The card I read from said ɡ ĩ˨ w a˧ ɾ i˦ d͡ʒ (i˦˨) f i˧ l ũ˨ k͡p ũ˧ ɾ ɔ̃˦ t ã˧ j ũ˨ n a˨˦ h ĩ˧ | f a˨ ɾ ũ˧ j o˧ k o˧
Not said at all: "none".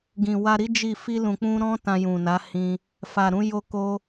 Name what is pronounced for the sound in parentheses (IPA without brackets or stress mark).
i˦˨